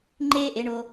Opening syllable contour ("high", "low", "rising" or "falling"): high